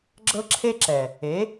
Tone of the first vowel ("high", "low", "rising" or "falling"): high